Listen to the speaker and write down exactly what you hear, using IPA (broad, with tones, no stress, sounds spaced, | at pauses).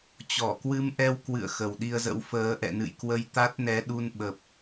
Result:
t͡ɕ ɔ˧˩ k w ɨ˧ m ʔ ɛ˧ w k w ɨ̰˧˨ ə̯ x ə˨˩ w ɗ i˧ ə̯ z ə̰˧˥ w f əː˨˦ ʔ ɛ̰˧˨ n ɨ̰˧˨ j k w ə˧ j t̪ a˦˥ t̚ n ɛ˨˦ ɗ u˧ n ɓ ə˨˩ p̚